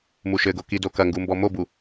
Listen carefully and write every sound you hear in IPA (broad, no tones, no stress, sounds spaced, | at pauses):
m u ʃ ɘ ɡ o k i d o k ɐ ŋ ɡ u m b ɔ m o b u